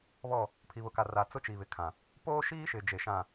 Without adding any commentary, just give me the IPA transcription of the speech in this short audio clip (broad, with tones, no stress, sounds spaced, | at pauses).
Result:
β ɔ˦˨ | pʰ i˨ β ʊ˨ k a˨ r a˨ t͡s ʊ˦ t͡ʃ i˨ β ɪ˨ kʰ ã˨ | p oː˦ ʃ iː˦ ʃ ɪ˨ d͡ʒ e˨ ʃ ã˦˨